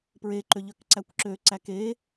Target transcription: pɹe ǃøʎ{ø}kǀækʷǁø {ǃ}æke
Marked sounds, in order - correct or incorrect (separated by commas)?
correct, incorrect